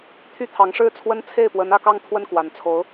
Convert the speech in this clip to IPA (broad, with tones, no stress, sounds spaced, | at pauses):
t̪ʰ y˥˩ t̪ʰ ɑ˧˥ ŋ ʂ ɻ̩˥˩ t͡sʰ w ə˥ n t͡sʰ e˥˩ ɪ̯ p w ə˧˥ n ä˥˧ k ɑ˥˧ ŋ t̪ʰ w ə˥˩ n k w a˨˩ n t͡sʰ o˧˥ ʊ̯